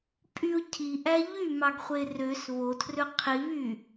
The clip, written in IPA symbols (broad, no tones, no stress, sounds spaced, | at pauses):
pʼ y ʊ̯ cʰ i ʔ æ ʎ y m ɑ ɡ χʷ e r ø s β o tʰ r ø qʰ i β y